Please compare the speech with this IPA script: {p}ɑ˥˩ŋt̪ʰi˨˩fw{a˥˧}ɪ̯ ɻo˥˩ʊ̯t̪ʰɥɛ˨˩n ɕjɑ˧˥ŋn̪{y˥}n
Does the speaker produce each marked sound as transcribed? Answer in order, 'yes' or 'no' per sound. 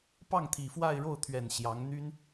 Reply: yes, yes, yes

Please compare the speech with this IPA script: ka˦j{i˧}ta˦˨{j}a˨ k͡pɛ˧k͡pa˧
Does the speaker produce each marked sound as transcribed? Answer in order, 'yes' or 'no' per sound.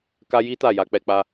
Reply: no, yes

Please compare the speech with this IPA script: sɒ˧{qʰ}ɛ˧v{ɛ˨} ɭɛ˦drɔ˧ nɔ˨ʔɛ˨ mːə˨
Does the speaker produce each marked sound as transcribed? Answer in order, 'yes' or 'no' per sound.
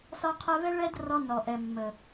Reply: yes, no

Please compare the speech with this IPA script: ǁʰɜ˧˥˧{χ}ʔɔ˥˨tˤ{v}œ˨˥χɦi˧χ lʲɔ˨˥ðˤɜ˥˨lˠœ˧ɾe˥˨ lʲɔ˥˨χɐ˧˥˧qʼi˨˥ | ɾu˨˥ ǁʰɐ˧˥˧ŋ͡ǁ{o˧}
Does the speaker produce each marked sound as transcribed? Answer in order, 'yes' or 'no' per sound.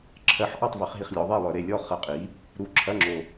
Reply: no, yes, yes

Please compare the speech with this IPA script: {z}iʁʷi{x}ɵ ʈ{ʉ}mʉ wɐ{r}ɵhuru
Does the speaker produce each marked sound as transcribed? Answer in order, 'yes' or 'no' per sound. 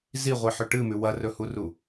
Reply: yes, no, no, yes

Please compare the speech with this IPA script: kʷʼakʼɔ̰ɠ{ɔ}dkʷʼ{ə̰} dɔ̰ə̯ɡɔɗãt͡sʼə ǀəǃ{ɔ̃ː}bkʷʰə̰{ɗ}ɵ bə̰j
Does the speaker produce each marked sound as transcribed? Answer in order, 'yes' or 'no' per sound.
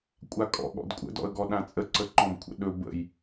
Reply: no, yes, no, yes

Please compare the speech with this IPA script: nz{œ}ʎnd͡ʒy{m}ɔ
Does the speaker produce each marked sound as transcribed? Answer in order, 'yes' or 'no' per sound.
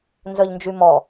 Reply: yes, yes

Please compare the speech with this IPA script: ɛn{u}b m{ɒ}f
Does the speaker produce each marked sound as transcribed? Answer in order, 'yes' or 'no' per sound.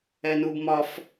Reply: yes, yes

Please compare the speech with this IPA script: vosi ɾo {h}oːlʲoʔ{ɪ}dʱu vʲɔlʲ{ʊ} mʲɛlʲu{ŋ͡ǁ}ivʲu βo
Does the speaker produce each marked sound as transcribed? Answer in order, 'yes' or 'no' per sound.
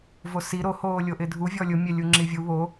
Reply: yes, yes, yes, yes

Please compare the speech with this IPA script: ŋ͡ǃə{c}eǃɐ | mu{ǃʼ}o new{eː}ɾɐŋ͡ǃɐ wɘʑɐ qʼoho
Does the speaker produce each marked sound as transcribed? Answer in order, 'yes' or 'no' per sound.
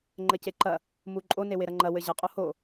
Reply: yes, yes, no

